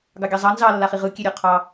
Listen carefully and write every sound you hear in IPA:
ɡ ɑ ɡʲ ɑ zˤ ɑ n z ɑ lː a χ i ʁ ɯ kʲ e ɾʲ ɔ qʰ ɑ

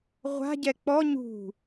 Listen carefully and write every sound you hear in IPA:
ʁʷ a̤ ɟ ɛ k͡p ɔ ɲ ṳ

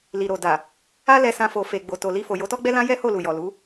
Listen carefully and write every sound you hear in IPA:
l i˨ ɾ o˨ d a˨ | a˦ l ɛ˧ s ã˧ f o˨ f e˨ ɡ͡b o˨ t o˨ l i˧ f o˨ j o˨˦ t ɔ˦ ɡ͡b ɛ˦ l ã˦ j ɛ˦ h o˦˨ l u˨ j ɔ˨ l u˨˦

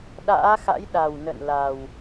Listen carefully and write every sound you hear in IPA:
ɗ a̰ː˧˥ x a̰˧˥ j ɗ a˨˩ w n ə̰˧˨ n l a˨˩ w

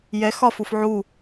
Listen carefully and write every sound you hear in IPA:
j ɛ x ɒ f u f ʕ u

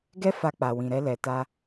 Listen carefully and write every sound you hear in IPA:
ɡ ɛ˦ f a˧ k͡p a˨ w ĩ˨ ɾ ɛ˧ l ɛ˨ t a˧

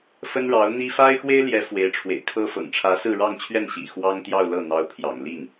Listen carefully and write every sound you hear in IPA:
f ə˥ n ɻ ɑ˧˥ ʊ̯ n̪ i˥ f a˥ ɪ̯ x w e˥ ɪ̯ l j ɛ˧˥ f w e˧˥ ɪ̯ ʈ͡ʂʰ w ḛ˨˩ ɪ̯ kʰ ɤ˥ f ɤ̰˨˩ ŋ ʈ͡ʂʰ ä˧˥ s ɹ̩˥˧ ɻ ɑ˥˧ ŋ t͡ɕʰ ɥ ɛ˥˩ n ɕ ḭ˨˩ x w ɑ˥ ŋ t̪ j ɑ˥˧ ʊ̯ l ɤ˥˩ n̪ ɑ˧˥ ʊ̯ pʰ j ɑ̰˨˩ ŋ l i˥˩ ŋ

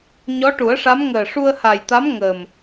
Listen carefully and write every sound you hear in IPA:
ɲ ɔ˧˥ ʈ u˨˩˦ ə̯ ʂ a˧˥ m ŋ əː˨˩ ʂ u˧ ə̯ h a˨˩ j t̪ a˧˥ m ŋ əː˨˩ m

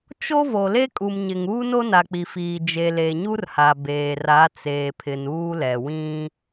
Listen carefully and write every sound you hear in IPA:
t͡ʃ o˦ v o˨ l e˦ kʼ u˨ m ɲ ɪ˨ ŋ uː˦ n o˦ n a˨ k͡p i˨ f iː˨ d͡ʒ e˨ l e˨ ɲ u˦ r h a˨ b eː˨ r a˨˦ t͡s eː˨ pʰ ɪ˨ n uː˦ l ɛ˨ w ĩ˦

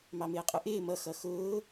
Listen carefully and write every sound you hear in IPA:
m ɑ m ɪː qʼ ʊ ʔ ɪː m ʌ x ʌ x ʊː

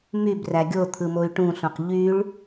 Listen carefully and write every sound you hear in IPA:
m y b r æ ɡʲ o t̪ʰ ɯ m o y̯ ʈ ũ ɬ õ q ʎ y ɭ

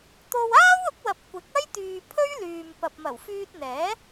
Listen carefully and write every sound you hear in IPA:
t̪ o˧ w aː˥ w ʊ˨˥ k̚ w ɐ˨ p̚ kʷ ɪ˨˥ k̚ ɐ˥ j t̪ yː˨ pʰ ɵ˥ ɥ l yː˨ m p ɐ˨ p̚ m ɐ˨˩ w f yː˧ t̚ n̪ ɛː˨˥

